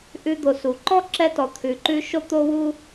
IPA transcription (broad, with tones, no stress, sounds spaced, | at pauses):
ʔ ʉ˧ d̪ o˩ s u˩ ǃ ɔ˥ ǁ ɛ˥ t ɔ˩ t̪ʰ ʉ˩ ǃ ʉ˥ ʃ o˥ t̪ o˥ w u˥